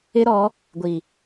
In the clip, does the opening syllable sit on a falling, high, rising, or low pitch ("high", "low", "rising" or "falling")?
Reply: high